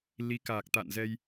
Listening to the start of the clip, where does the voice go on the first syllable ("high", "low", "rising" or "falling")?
rising